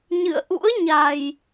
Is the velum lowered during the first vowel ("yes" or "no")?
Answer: no